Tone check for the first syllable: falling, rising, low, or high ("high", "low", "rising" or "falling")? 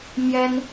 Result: high